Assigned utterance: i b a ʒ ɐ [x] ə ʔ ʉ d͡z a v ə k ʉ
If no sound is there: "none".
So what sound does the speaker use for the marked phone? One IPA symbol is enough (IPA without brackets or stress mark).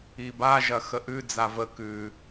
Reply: x